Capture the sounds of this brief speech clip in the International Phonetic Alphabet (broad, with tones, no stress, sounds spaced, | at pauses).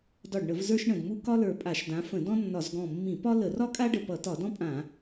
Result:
d ɒ˧˩ ɖ ɳ ə˧˩˧ v z ə˞˥ ʃ ɳ ə̃˧˩ d m u˥ k ɒ˥ l ə˞˧˩ pʼ a˧˩˧ ʃ d ã˨˦ f ə̃˧˩˧ d ɔ̃˥ nː ɒ˧˩˧ z ɡ ɔ̃˧˩ mː ĩ˧˩˧ p ɒ˥ l ə˧˩˧ r ɒ˥ kʼ a˥ ɖ ə˧˩ p ʌ˧˩˧ t ɒ˧˩˧ d ɔ̃˥ pʼ ã˧˩˧